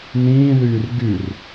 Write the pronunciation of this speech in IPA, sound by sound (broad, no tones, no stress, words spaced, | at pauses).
nĩːðyːr ɡyr